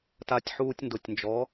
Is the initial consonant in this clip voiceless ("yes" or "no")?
yes